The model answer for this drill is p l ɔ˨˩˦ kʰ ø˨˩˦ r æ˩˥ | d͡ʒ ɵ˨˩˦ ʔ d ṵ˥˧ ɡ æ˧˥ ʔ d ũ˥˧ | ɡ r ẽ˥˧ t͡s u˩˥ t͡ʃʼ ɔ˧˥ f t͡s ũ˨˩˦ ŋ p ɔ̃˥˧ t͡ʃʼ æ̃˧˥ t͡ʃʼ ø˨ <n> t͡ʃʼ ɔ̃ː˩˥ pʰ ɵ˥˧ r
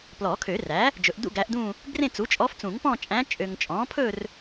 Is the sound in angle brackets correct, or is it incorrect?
incorrect